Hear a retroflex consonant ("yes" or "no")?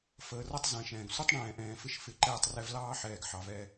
yes